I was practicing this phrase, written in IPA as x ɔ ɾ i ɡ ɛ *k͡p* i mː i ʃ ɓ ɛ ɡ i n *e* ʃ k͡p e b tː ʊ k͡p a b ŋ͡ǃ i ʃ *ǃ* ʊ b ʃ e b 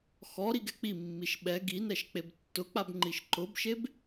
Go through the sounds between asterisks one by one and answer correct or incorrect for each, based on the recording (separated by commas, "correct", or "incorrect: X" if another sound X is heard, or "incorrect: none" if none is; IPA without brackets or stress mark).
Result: correct, incorrect: ɛ, correct